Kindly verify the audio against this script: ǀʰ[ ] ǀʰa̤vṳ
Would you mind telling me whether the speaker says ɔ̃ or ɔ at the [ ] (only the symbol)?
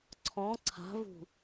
ɔ̃